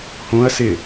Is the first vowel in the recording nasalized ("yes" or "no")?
yes